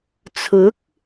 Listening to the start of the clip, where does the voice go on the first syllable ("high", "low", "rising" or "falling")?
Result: rising